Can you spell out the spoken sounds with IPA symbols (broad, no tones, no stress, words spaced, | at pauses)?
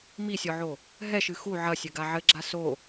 misʲɔʕo | ɦɛʃɨ xu ʕɐsʲɘɡa ʕɘɡ͡ǁa so